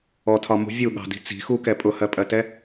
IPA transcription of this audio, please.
ɔ tʰ ɒ m ṳ vʲ u ɠ ɑ̤ d i̤ t͡s i̤ x u k ɛ pʼ ʊ h ɜ pʼ ɜ t ɛ

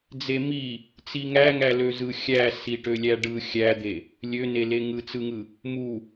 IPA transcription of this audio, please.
d͡z e m i | t͡s i ŋ æ ŋ æ l ø z ɯ xʲ æ s i ʈ ø lʲ æ ɖ ɯ xʲ æ d̪ e | lʲ ø n e l e ŋ ɯ t͡s ɯ ŋ ɯ | m u

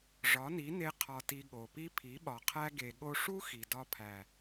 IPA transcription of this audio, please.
ʐ ɒ˨˦ n i˨˦ n e˦ qʰ ɒ˧ t i˧ ɠ o˨ p i˦ pʰ i˨˦ ɓ ɒ˨ qʰ æ˦ ɡ e˧ ɠ o˧ ʂ u˦ x i˨ d ɒ˧ pʰ æ˨

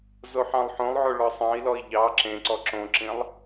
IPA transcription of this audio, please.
z o ħ ɑ̃ lˠ ħ õ lˠ ʕ o ɭ ɒ sˤ ɑ̃ i̯ l ɔ i̯ ʎ ɑ ǁ ẽ ǀ ɔ ǁ õ ǁ ĩ lˠ

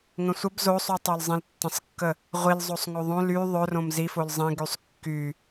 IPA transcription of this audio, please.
ŋ ə̃ sʷ ə b z o sˤ y tˤ o l zˤ ĩ l tː ə̃ sˤ kː ə | ʁʷ i l zˤ o sˤ ŋ o ðˤ õ l y ðˤ ɵ r õ m z i f o l zˤ ĩ ɡ y sˤ kː y

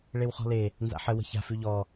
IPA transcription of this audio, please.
ɭ e w χ ɔ̤ l e | n z a̰ ħ ə w ə̤ ç a̤ f ʉ ʎ ɔ

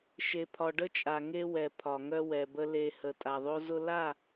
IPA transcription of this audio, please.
ʃ e˨ pʰ ɒ˨ ɖ ə˦ t͡ʃʼ a˨ ŋ e˦ w ɛ˨ pʰ ɒ˨ ŋ œ˦ w ɛ˨ b ə˦ l e˦ h ə˨ tʼ a˨ ðˤ o˦ z ʊ˦ l a˦˨

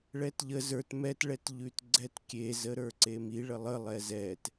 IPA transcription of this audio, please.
ɭ ɛ t ʎ ə z ə˞ t m ɛ t ɭ ɛ t ʎ ʉ t ɡ͡ǀ ɛ t kʲ e z ə ɾ ə˞ ǀ e m i ɭ ə lˠ ə lˠ ɛ z ɛ t

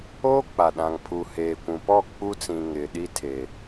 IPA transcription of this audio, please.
oː˦ k͡p a˨ ɗ ã˨ ŋ pʰ u˨ h eː˨ kʷ ũ˨ p ɔ˦˨ k͡p u˦ t͡s ĩ˨ ŋ ɪ˨ ɗ i˦ tʰ e˨

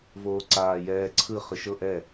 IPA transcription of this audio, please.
v oː ǀ aː j ɛː ǀʰ ɯ χ ɯ ʃ ɤ ʔ ɛ

